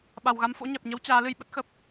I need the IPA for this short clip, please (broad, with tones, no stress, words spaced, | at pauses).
ɓa˨˩wɣa˨˦mfo̰˧˥ ɲɛ˨˩p̚ɲə˨˦w t͡ɕaː˨˦lɨ˧j ɓə˦˥t̚xə˨˩p̚